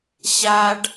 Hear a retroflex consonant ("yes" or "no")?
yes